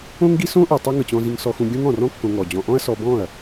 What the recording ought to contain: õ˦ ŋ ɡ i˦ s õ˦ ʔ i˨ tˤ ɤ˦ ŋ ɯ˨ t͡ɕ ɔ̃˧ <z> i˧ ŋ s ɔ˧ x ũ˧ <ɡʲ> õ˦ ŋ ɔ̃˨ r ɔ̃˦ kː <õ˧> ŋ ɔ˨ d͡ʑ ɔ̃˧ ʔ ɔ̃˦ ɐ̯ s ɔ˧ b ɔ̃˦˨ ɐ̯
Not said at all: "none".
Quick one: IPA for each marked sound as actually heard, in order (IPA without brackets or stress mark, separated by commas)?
z, ɡʲ, õ˧